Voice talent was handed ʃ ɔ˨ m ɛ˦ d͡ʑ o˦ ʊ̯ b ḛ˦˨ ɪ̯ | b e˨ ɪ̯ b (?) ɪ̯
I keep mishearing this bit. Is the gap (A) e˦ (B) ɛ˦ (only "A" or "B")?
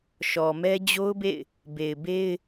A